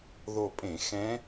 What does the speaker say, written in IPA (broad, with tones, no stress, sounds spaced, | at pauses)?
ð o˧˩ pʼ ẽ˧˩˧ x ɛ̃ː˧˥